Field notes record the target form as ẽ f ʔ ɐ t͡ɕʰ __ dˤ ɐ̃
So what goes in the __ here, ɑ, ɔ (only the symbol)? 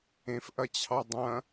ɑ